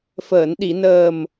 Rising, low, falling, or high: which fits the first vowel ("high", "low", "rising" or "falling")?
low